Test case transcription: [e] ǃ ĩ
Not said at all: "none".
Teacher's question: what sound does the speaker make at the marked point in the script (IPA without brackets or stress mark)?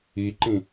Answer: i